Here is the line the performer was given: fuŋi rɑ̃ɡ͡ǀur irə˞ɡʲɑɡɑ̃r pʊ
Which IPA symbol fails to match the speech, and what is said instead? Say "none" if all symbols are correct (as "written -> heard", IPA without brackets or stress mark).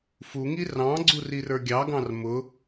p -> m